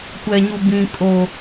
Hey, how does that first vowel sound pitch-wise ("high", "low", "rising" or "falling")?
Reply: low